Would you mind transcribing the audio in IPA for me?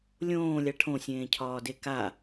lʲ õː lʲ a ʈʰ õ sʲ ẽː cʰ ɒː d e k a

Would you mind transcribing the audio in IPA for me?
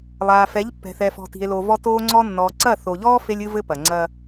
lˠ aː˨ f ɛ˨˦ ʎ pː ɛ̤˨ θ ɛ˨ f ɔ̤˨ t i̤˨ e̯ l oː˨ v ɔ˦ t oː˦ ŋ͡ǀ ɔ˦ nː ɔː˨ ǀ ɐ˦˨ θ o˨ ʎ ɔː˦ f e˦ lʲ ɨ˦ v ɘ˦ p ɐ˨ ŋ͡ǀ ɐ˦

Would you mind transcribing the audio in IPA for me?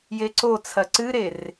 j e ǀ o t͡sʰ ɐ ǀ ɨ ɾ e r

